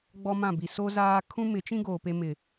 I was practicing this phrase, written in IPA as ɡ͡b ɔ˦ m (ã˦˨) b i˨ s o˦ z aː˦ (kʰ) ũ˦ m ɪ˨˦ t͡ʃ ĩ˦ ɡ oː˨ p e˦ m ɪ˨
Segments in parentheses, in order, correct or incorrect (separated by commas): correct, correct